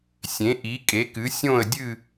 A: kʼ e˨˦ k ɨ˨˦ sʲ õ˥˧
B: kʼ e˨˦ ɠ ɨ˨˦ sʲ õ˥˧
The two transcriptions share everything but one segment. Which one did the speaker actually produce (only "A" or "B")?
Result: A